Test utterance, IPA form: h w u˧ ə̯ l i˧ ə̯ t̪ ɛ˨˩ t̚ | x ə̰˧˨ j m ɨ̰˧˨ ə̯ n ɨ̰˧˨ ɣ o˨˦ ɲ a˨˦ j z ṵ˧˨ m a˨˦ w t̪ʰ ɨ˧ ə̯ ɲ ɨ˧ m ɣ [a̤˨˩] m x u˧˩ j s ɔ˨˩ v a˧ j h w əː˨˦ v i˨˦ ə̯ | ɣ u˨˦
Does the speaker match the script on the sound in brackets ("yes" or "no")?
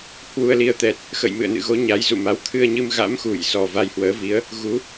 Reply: no